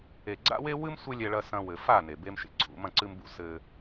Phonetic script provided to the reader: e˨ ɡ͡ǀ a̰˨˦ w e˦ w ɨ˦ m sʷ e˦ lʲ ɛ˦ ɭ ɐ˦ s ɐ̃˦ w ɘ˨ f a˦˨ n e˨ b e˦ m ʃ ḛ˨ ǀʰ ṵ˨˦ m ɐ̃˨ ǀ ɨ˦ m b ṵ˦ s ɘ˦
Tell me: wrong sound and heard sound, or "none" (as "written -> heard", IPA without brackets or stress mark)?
a̰˨˦ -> a̰˦